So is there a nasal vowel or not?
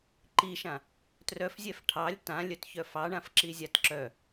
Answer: yes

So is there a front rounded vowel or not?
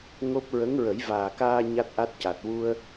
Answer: no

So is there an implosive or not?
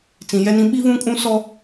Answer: yes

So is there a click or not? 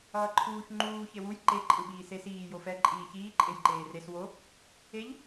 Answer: yes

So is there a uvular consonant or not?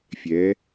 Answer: no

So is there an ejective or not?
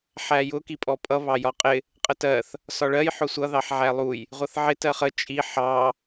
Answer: yes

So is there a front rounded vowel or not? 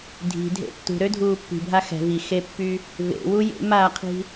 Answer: yes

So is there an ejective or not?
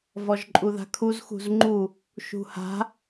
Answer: yes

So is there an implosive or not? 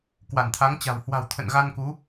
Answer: no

